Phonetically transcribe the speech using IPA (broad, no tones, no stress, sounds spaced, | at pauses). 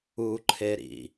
u ǃʰ e ɾ ḭ